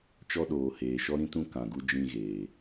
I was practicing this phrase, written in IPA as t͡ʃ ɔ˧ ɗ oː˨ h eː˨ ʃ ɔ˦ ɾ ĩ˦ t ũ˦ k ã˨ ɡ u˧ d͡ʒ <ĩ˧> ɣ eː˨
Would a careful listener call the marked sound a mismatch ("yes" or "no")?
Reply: no